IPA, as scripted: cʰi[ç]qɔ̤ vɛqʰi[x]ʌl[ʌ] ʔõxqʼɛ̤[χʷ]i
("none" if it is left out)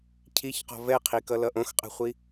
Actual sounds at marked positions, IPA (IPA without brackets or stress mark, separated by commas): ç, k, ʌ, χʷ